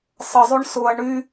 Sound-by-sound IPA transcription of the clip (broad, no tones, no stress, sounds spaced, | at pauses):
sˤ ə zˤ y ɳ s ʊ ɐ̯ ɳ y